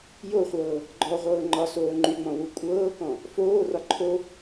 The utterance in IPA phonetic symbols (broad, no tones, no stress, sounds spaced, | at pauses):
j o χʷ ɤː | ɡ͡ǃ ɔ ʁʷ ɤː ŋ͡ǃ ɒ s oː ŋ͡ǃ y ŋ͡m ɔ̃ w u kʷʼ ɤː k ɔ̃ | f oː r ɒ ǃʰ o